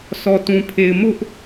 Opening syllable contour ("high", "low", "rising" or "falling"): low